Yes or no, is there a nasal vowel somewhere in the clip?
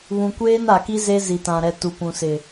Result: yes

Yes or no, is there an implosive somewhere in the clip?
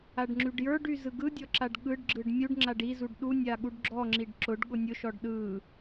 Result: yes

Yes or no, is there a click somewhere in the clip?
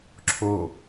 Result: yes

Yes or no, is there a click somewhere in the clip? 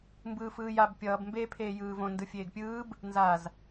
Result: no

